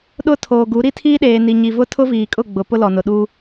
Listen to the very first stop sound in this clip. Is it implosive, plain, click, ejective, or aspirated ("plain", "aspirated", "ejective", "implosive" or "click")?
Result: implosive